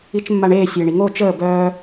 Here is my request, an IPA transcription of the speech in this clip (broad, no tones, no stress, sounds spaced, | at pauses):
i t͡ʃ mː a ɳ eː sʲ eː ɳ i ŋ oː t͡ʃ əː b œː